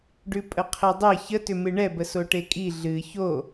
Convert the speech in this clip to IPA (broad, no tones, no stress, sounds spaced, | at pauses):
ɖ ʉ pʼ ə qʰ ɘ dˤ ɘ ç ə t ʏ m ɨ ɳ ɛ b ə s o ʈ e kʼ i ɮ ɨ ç o